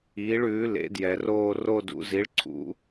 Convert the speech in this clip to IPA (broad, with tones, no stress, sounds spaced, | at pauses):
iː˩˥ ɭ ʉː˩˥ l ḛ˩˥ d j ɛ˩ r oː˦˨ r o˦˨ d ṵ˩˧ z i˩˥ ɭ ǀʰ ṵ˩˥